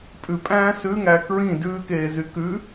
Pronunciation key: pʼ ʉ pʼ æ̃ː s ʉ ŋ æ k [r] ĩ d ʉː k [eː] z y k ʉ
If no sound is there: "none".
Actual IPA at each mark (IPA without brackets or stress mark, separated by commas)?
ɹ, eː